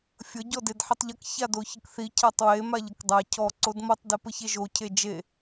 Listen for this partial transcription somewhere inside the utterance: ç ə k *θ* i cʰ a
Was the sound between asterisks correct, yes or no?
yes